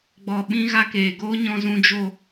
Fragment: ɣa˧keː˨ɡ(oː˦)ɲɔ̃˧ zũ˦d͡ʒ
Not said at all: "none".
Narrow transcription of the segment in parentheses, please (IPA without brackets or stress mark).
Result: oː˦